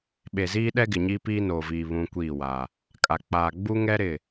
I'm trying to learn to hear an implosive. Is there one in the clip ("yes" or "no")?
yes